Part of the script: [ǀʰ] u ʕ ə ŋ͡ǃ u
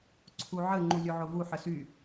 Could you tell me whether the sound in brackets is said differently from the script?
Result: no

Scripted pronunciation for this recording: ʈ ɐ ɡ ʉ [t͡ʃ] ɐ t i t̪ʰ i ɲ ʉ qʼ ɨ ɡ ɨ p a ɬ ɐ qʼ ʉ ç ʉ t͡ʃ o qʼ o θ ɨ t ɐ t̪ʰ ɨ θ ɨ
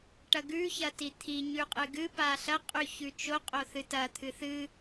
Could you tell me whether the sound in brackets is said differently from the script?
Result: yes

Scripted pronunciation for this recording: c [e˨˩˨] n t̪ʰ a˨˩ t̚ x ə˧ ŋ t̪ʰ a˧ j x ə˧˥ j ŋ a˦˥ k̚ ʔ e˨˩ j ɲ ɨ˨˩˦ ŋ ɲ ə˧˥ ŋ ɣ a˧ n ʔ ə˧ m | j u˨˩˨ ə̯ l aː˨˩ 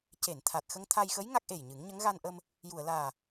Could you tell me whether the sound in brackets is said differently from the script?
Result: no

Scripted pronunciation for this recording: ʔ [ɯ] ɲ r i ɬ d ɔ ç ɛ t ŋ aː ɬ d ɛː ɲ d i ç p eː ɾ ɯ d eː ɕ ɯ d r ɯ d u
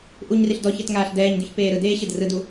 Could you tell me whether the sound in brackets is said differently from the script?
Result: yes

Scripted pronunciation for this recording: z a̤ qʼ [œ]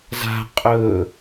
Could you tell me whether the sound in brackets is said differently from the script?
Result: yes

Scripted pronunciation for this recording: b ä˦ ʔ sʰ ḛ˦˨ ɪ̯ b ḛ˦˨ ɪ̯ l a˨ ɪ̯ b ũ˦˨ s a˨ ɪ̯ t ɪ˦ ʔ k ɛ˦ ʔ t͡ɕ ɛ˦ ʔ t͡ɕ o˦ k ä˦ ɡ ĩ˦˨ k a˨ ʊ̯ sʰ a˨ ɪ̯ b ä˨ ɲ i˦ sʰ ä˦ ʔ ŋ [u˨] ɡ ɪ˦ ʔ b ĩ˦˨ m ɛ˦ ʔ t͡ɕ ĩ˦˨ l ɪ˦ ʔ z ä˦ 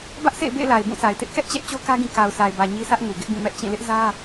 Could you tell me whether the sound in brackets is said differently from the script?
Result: no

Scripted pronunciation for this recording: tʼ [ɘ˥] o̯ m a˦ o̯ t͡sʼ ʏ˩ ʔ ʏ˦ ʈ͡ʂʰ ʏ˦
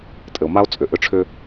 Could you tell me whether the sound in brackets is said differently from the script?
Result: yes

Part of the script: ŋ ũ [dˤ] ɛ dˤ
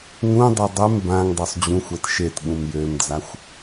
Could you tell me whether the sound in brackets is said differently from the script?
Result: no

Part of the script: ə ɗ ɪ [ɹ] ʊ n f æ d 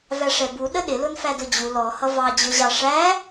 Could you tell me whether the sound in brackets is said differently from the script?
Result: yes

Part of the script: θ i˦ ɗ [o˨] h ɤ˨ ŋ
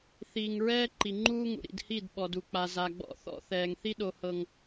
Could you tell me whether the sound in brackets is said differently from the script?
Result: no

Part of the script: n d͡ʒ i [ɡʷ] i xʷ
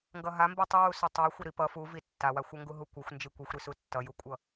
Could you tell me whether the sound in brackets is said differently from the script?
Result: yes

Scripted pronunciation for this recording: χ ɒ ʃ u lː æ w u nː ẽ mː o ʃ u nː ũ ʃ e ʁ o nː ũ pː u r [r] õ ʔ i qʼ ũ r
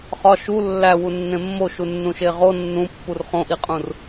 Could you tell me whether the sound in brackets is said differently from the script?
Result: yes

